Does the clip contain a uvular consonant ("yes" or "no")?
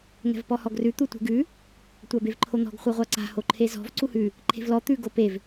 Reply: yes